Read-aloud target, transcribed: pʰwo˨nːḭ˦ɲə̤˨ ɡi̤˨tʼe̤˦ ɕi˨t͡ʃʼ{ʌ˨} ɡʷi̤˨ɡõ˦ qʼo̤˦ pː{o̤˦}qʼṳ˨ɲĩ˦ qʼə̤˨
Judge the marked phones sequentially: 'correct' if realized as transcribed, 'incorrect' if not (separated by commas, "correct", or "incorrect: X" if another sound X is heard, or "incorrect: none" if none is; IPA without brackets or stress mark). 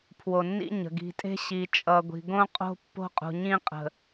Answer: correct, correct